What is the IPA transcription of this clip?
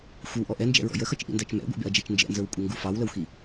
xʷ ə w ʔ ɔ ʔ ɛ n d͡ʒ ɛ̰ ɹ ɔ̰ j ə x ʌ t͡ʃ ʔ ḭ n d æ t͡ʃ m ɛ̰ ɡʷ ḭ b ɛ̰ ɐ̯ d͡ʒ ɛ t͡ʃ n d͡ʒ ɛ̰ n z ə˞ w kʷʼ ʌ ŋ ɡ u f ɑ w l ə w x i

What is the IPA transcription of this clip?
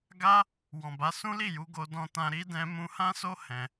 ɡ a˦ | w ɔ̃˨ b a˨˦ s ũ˦ l i˦˨ j u˧ ɡ o˧ d ɔ̃˧ t ã˧ ɾ i˧ d ɛ̃˧ m ũ˧ h ã˦ s o˦ h ɛ̃˧

